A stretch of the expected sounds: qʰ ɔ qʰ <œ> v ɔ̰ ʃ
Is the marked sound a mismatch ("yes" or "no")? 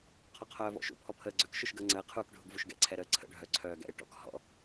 yes